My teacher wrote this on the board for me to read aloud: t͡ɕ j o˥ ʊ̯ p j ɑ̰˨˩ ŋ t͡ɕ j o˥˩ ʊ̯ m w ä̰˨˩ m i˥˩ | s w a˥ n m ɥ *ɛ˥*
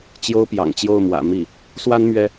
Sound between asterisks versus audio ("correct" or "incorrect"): correct